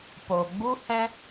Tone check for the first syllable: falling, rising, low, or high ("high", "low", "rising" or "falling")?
low